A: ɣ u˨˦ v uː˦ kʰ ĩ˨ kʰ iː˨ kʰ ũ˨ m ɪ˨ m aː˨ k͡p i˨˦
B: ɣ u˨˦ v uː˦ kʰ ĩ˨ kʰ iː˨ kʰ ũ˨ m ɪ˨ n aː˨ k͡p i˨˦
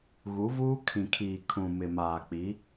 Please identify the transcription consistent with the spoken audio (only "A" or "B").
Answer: A